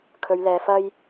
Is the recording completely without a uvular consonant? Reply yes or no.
yes